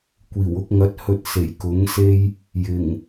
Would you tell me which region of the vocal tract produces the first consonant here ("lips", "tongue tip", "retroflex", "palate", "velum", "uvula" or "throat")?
velum